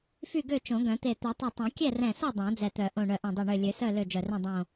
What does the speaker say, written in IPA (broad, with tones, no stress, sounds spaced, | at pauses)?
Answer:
f y˥˨ ɡ ø˥˨ t͡ʃ õ˨˩˦ ɡ œ̃˨˩˦ t̪ e˧˩ t̪ ø˨˩˦ tˤ ɛ˧˩ tˤ õ˨˩˦ kʲ ɛ˥˨ r ɛ̃˧˩ s o˥˨ dˤ õ˨˩˦ d͡z ɛ˧˩ t̪ œ˨˩˦ ʔ õ˧˩ ɳ œ˧˩ ʔ ẽ˧˩ dˤ ø˧˩ ɳ ø˧˩ lʲ ø˨˩˦ s œ˥˨ l ø˥˨ d͡ʒ œ˧˩ r œ̃˥˨ dˤ õ˧˩